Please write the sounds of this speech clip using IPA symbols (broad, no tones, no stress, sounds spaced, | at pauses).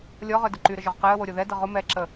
lʲ ɔ ʁ œ d ʊ ǃ y ɾ ə ʒ œ ʁ q ɛ ə̯ w o ɾʲ o ð ɛ d ə ʁ ʊ m ɛ ǁ ə